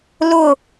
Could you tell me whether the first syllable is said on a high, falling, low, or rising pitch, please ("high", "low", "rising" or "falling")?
falling